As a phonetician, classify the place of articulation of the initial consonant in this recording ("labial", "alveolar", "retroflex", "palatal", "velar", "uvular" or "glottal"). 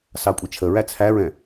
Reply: alveolar